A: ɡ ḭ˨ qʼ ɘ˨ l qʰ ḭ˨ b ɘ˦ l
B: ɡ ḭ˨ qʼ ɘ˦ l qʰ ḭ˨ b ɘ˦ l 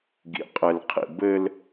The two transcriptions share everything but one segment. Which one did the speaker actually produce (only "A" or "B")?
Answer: A